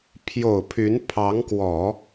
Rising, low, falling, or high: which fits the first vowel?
low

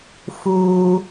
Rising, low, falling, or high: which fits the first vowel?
low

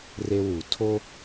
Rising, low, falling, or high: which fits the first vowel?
high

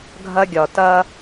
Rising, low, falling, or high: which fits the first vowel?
high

